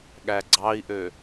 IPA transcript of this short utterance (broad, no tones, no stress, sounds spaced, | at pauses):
ɠ æ ɡ͡ǀ ɑ i̯ ʔ ø